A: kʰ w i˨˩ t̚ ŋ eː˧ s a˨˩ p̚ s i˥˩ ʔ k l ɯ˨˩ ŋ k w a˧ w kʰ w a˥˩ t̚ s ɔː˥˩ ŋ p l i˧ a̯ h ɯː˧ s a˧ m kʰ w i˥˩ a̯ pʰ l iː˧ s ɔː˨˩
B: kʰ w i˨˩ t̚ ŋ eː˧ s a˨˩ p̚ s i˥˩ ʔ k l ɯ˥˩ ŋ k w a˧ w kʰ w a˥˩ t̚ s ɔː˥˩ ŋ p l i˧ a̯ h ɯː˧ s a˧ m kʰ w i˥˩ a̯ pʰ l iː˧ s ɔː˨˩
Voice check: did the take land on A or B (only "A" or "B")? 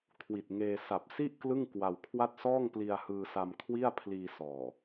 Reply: B